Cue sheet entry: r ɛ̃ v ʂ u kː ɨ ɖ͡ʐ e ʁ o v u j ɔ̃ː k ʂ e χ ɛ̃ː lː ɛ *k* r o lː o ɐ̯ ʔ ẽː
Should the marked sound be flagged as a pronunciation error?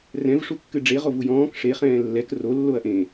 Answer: no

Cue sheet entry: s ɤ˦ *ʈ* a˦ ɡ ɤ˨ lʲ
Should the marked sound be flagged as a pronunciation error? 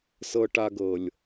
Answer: no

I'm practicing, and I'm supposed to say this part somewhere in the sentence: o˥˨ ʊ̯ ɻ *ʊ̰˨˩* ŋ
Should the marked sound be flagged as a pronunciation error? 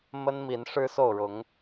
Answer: yes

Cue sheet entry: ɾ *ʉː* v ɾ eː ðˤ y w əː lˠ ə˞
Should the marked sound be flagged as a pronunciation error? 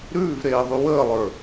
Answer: no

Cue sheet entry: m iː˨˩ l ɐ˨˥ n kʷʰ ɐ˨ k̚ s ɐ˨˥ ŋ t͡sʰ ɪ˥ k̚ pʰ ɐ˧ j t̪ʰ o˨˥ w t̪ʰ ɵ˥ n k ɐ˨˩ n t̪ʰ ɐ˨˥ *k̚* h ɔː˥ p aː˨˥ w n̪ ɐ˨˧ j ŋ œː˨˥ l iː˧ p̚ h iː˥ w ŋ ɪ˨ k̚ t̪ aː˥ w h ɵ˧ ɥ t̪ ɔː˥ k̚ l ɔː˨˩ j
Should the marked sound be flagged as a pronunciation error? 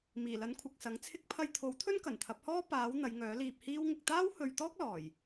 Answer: yes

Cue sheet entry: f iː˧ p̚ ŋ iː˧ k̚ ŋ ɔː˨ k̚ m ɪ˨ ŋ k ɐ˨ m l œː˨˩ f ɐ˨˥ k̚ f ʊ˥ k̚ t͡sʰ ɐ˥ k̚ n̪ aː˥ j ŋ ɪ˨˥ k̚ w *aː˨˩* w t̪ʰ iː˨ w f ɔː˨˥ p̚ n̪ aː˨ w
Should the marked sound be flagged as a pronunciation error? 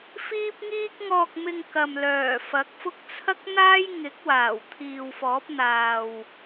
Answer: no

